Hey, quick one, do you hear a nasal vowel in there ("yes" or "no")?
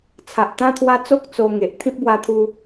yes